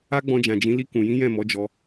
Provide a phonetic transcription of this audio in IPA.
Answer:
a˦ɡ͡bɔ̃˧d͡ʒã˨d͡ʒĩ˨˦ li˧kũ˨jĩ˨˦ jɛ̃˦˨mɔ˨˦d͡ʒɔ˧

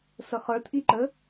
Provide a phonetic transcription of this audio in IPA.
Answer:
səχə˞tʔiǃə

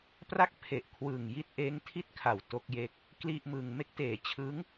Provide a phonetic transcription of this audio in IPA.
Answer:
pra˥˩k̚pʰe˨˩ʔkʰwɯː˨˩ŋ ji˦˥t̚ʔeː˦˥ŋtʰi˥˩t̚kʰa˨˩w to˦˥k̚je˦˥k̚ | kli˥˩ʔmɯː˧ŋ me˦˥k̚teː˩˦t͡ɕʰɯ˦˥ŋ

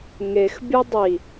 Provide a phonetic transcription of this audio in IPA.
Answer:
ŋexbʲu dˤi

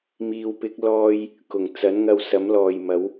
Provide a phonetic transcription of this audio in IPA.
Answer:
miː˨wpɪ˨˥k̚ lɔː˧j | kʊ˨˩ŋ t͡sɐ˨˥nŋɐ˧wsɐ˨˥m lɔː˨jmɐ˨˥w

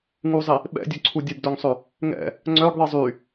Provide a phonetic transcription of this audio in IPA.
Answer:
ŋuzˤi | ɓɛ̰dʲœǀʰu dʲəbdœŋsˤø | ŋɛ̰ | ŋ͡ǀœɡðˤi zˤy

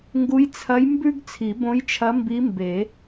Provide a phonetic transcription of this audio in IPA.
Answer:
ŋɡu˧˥jt͡sʰɐ˧˥j mbʉ˥ɡ t͡sʰi˨˩˦bõ˧˥jt͡ʃʰɐ˧˥ mbi˧˥mbe˨˩˦

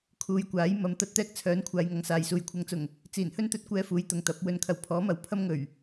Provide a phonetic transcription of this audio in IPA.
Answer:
kʰuː˨˧jkʷaː˨˥j mɐ˨˥m t̪ɐ˨˥t̚t̪ɛː˧k̚t͡sʰœː˨˥n kʷʰaː˨˧jŋɐ˨ŋsaː˨jsuː˨j kʷʰɐ˨ŋt͡sʊ˨˩ŋ | t͡siː˨˩nhɵ˥nt̪ɵ˨˥t̚ kʷɛː˧fuː˨˧j t̪ʊ˨ŋt̪ɐ˨˥p̚ wɵ˨˧nkʰɐ˨˩wpʰɔː˨˥mɐ˨˥w pʰɐ˥mŋɵ˨˩ɥ

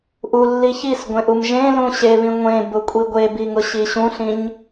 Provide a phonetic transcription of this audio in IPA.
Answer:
ʔulːi çisɡʷẽʔum ʒẽlũ ɕeβĩ ŋʷẽbʊkʷʼi ɡʷebiŋʊɕi ɕũɬĩɲ

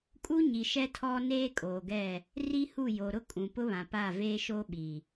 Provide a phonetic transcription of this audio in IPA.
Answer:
kʼu˦ɲi˨ʃɛ˦ tʰɔ˦ neː˦ kʼoː˨ɡɛ˦˨ | ri˦hu˦˨jo˨ ɾʊ˦kʼũ˨pʊ˦βã˨ pa˦˨veː˦ʃo˦ɓi˨

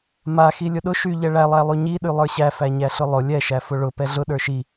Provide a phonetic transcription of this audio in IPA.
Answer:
ma xilʲʊɗʊ ʃyʎɛ ɭælˠæ lˠyɲiɗy lˠə˞ɕæfæ ɲæɬʊlˠʊ lʲɛʃæ fʊɭʊ pɛɮʊ ɗə˞ʃi

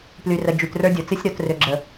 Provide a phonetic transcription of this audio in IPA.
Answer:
ply˨rə˨ d͡ʒy˨trə˞˦dʲo˨t͡sɨ˦sʲ ɾo˨t rø˨ɡ͡ǁə˨

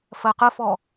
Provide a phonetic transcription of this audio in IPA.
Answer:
fɜqəfɔ

